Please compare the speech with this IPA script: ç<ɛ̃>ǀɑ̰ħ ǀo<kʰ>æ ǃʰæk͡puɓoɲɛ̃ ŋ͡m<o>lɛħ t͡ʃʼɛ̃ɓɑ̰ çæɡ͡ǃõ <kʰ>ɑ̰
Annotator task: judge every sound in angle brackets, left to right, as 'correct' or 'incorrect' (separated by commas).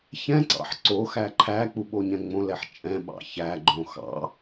correct, incorrect, incorrect, incorrect